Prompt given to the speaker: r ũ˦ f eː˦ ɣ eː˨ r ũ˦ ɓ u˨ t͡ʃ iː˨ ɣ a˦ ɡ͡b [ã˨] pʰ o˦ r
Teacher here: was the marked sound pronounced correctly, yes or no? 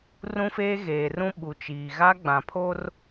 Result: yes